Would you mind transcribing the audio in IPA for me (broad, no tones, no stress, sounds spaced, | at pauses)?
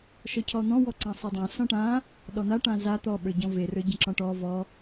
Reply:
ʃ ɔ cʰ ɔ n̪ ɔ̃ w ɔ ǀ ã sˤ ə˞ dˤ ã s ɔ̃ ʈ ã | ɗ ɔ n̪ a ʈ ã z a t̪ ɔ ɓ ə˞ ɟ ɔ̃ v e r ə˞ ɟ ə̃ ǁ ɔ̃ ʈ ɔ v ɔ